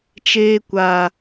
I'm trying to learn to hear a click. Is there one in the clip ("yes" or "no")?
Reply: no